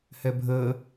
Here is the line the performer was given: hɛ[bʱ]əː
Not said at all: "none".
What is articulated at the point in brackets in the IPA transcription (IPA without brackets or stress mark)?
bʱ